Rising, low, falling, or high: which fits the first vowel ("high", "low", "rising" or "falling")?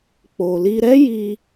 low